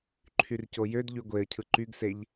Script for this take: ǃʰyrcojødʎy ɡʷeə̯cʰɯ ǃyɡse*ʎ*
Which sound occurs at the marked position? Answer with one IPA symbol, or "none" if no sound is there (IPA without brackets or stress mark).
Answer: ʎ